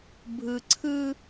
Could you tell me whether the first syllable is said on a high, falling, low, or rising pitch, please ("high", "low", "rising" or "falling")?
low